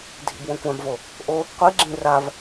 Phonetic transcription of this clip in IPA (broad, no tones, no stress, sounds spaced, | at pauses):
dʱ ḭ b w õ kʷ ã b v o | ʔ o | qʷ i ɡ͡ǁ ĩ r a v